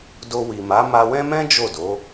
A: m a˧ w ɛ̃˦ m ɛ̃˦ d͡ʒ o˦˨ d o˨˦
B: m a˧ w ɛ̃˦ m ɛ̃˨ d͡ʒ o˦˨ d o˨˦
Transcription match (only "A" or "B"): A